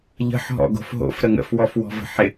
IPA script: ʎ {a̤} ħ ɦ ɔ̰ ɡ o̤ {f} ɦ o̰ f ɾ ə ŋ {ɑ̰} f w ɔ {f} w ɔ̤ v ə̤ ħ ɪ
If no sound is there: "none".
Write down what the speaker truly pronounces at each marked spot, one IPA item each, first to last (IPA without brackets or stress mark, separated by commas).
ə̤, f, ə̰, f